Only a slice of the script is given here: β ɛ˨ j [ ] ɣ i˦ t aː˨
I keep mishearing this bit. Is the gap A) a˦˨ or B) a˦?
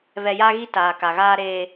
B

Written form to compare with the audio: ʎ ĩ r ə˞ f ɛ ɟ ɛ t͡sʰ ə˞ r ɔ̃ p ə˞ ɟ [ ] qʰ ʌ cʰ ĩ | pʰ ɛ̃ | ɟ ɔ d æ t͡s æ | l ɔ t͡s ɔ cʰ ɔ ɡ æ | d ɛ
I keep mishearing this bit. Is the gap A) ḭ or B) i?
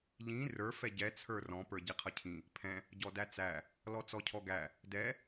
B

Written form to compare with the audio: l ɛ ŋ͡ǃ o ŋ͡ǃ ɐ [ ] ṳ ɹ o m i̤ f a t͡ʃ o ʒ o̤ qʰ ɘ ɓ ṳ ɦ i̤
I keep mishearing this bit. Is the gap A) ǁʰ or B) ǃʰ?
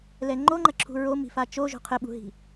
A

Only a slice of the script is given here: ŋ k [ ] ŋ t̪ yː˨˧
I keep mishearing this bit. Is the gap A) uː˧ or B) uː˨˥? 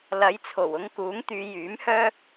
B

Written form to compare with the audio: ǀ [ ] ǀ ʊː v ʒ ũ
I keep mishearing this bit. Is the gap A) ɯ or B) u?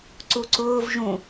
B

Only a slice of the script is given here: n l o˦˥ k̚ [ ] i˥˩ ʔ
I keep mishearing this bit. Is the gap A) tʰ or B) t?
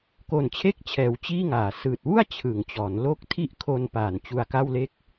A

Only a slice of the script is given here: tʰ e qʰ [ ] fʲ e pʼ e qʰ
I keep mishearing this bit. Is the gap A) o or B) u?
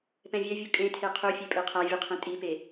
B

